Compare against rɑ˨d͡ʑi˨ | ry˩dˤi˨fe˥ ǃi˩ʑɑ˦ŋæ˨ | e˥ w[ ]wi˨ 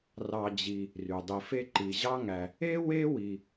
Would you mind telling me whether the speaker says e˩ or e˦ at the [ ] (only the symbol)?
e˦